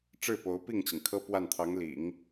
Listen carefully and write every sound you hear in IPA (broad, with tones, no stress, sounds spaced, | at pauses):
ʈ͡ʂ ɻ̩˥˩ p o˧˥ ʊ̯ p i˥˩ ŋ t͡ɕ i˩ ŋ kʰ ɤ˥ p w a˥˩ n t̪ʰ ɑ˧˥ ŋ l ḭ˨˩˦ ŋ